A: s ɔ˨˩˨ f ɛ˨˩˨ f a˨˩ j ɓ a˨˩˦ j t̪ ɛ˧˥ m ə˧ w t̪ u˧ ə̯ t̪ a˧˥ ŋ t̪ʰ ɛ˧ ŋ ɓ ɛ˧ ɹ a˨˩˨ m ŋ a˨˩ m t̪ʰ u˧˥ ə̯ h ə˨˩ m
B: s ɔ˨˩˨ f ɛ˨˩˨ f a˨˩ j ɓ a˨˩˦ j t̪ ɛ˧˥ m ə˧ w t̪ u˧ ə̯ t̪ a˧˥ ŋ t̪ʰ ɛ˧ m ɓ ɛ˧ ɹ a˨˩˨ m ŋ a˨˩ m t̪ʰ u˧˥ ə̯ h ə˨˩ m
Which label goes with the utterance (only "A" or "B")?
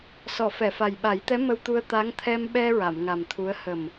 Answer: B